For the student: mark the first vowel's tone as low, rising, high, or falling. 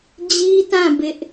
high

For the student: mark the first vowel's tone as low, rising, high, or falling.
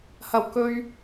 low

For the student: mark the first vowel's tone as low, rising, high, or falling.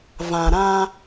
low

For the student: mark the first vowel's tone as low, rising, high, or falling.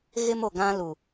high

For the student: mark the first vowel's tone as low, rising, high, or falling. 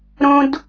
low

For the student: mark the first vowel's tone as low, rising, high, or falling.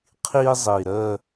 high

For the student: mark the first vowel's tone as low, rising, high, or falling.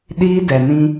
high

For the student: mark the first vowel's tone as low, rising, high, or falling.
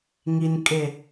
low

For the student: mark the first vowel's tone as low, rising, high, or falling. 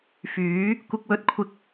rising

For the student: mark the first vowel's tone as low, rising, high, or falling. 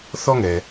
high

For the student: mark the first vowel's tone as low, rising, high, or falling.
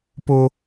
high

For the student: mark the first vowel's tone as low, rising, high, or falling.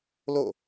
falling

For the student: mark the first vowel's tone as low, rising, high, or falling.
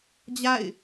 falling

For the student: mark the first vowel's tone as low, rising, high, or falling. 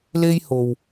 high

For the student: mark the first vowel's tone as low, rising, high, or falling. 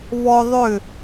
high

